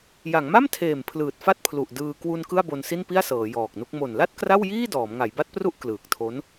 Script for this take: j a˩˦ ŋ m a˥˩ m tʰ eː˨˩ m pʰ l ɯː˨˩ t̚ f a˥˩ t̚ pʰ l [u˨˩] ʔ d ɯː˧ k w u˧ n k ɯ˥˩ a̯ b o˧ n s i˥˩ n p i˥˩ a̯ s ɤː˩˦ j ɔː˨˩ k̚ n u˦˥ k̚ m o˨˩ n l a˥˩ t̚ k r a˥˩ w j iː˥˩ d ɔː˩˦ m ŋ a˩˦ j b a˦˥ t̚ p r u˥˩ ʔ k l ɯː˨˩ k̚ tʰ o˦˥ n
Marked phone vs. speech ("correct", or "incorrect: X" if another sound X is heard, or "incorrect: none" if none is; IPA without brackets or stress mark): correct